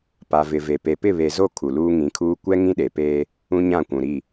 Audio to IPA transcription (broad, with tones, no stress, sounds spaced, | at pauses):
p a˨ v ɪ˨ v e˨ p e˨ p ɪ˦˨ β e˨ z o˦˨ kʰ u˨ l uː˦ ŋ ĩ˨˦ kʰ uː˦ kʷ ɛ˦ ŋ ĩ˦ ɗ e˨ p eː˦ | ũ˦ ɲ ã˦˨ kʷ ũ˨ ɾ i˦˨